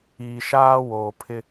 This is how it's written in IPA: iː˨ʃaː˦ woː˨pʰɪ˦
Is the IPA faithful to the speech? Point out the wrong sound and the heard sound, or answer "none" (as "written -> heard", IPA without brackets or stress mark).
none